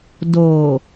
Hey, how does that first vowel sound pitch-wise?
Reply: low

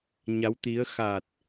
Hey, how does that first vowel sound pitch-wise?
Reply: rising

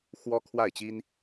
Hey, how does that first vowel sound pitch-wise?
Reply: high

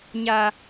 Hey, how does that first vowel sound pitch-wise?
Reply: low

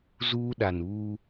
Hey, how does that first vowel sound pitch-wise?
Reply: high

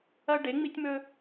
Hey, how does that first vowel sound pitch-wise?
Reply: high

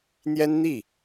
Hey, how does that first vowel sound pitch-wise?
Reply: high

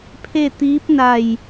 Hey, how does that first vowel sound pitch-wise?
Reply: falling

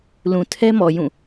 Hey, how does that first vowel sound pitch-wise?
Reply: low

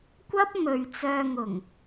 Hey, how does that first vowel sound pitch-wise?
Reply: high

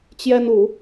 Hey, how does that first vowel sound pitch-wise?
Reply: high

